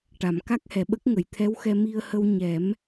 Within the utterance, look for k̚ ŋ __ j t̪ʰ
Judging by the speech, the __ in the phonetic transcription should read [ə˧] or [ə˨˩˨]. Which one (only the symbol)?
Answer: ə˨˩˨